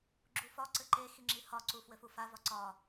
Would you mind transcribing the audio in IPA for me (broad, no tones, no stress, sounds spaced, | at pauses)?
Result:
ɡ͡ǁ u f ɒ ǀ ɘ ǃ e x i ŋ͡ǁ i h ɒ ǀ u f w ɘ f u f a v ɒ ǀ ɒ